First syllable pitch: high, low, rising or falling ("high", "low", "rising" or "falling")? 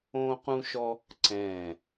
high